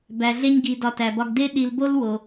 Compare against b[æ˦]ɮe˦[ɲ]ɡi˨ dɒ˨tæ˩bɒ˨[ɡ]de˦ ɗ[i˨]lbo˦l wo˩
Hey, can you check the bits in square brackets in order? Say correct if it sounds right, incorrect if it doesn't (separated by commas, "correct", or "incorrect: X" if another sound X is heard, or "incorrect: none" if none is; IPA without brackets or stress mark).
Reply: incorrect: æ˨, correct, correct, correct